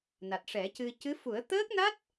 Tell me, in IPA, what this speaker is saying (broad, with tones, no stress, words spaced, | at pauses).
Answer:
na˨˩t̚ʂɛ˨˩˦cɨ˧ cɨ˧˥fu˨˩˦ə̯ t̪əː˦˥k̚na˦˥t̚